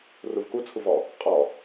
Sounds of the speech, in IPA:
r u v k u t͡sʰ u v ɔ | qʼ ɔ

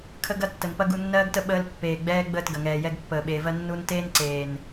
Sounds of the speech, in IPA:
kʰ ə˦ ɡ ɐ˦ tː ə˨ n p ɐ˦ ɡ u˧ nː ɜː˦ ɡ t ə˦ ɓ əː˧ l pː eː˨ ɡ͡b ɛː˦ ɡ͡b əː˦˨ t ɡ ɐ˨ ŋ ɛː˨ j ɛ˧ ɡ pː əː˨ ɓ e˨ v ɜ˦ nː u˦ n t eː˦ n ǀ eː˨ n

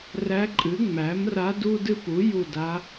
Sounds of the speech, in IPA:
r æ˧˥ ǃʼ ɨ˩˥ ŋ͡m æ˩˥ m r a˧˥ d u˥ d ɨ˥ p u˩˥ j u˦˨ d a˧˥

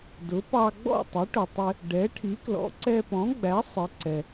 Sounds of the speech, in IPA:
d ʊ˩˥ p ɑ˧ ɡ͡b ɔ̰˥˩ tˤ ɪ˩˥ ʈ ʊ˩ tˤ ɪ˧ | ɖ ɛ˩˥ ʈʰ i˩˥ k l ɔ̰˩˥ ǀ ɛ˧ p ɔ̃˩˥ ɡ͡b æ˩˥ sˤ ɪ˩˥ ǀ ɛ˩

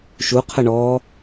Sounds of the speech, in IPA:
ʃ u qʰ ə ɳ ɔː

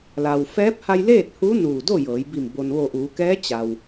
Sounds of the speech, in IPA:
l a˩ w f ɛː˧˥ p̚ h a˧ j l eː˥˨ t̚ h u˧˥ n uː˧˩ d o˥˨ j ɤː˩˧ j b i˧˩ m b o˩ n ʋ o˧˩ ʔ uː˩˧ k ɛː˧˥ t͡ɕ a˩ w

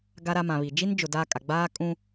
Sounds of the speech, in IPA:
ɡ a˦ ɾ a˦ m ã˨ β i˨ d͡ʒ i˦ n d͡ʒ ʊ˨ d aː˦ kʼ a˨ ɡ͡b aː˦ kʼ ũ˦

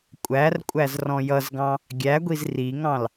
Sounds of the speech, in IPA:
kʷʼ æ r kʷʼ æ z r ɔ̃ j ʌ z ɡ ɑ̃ | ɡʲ æ ɡʷ i z r i ŋ ɑ̃ l

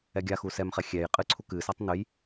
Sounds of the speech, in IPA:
ɛ ɡʲ a x u s ɛ m χ ɛ xʲ ɛ j qʼ ɨ ǀʰ u k ɨ s a tˤ n ɨ j

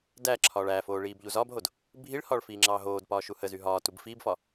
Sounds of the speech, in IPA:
d æ ǁʰ ɒː ɭ æ f oː ɭ iː b ʎ u z ɒ b ɦ o d | bʱ i ɭ h ɒː ɭ f iː ŋ͡ǁ ɑː ɦ oː d p ɒː ʃ u h ə z y ɦ ɒː t u b f iː b f ɒ

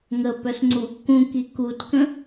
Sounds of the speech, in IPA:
ŋ ə p œ s ŋ͡ǀ u | k ũ k i k u t k ə̃

